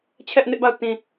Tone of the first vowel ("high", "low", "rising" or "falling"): high